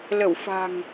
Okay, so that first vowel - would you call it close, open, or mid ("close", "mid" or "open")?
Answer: mid